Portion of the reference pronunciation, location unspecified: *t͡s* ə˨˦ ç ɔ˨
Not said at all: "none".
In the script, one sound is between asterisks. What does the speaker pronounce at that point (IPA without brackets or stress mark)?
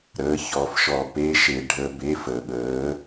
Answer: ɾ